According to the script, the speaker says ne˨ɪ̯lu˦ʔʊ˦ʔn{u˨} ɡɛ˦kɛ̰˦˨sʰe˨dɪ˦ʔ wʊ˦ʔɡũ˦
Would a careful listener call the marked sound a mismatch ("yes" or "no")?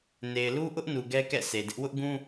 no